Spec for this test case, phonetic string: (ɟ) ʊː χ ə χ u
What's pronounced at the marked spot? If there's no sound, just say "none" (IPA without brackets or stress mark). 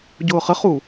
ɟ